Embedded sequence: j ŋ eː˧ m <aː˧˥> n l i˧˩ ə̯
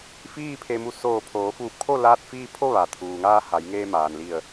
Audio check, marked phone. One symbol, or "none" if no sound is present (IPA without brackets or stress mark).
aː˩